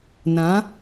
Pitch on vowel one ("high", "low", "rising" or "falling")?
rising